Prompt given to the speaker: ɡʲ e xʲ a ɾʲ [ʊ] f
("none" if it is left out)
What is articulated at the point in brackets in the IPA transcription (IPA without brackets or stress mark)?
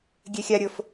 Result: ʊ